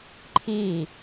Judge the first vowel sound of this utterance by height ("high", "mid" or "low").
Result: high